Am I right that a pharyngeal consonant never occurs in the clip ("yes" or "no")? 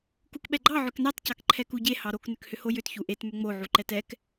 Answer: no